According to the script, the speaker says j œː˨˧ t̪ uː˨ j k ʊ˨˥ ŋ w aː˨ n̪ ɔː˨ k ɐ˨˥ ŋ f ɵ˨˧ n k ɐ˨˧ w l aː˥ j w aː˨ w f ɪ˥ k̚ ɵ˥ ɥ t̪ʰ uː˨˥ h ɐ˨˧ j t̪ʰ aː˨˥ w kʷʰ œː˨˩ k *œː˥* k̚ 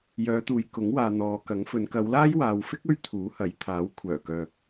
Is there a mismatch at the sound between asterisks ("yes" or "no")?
yes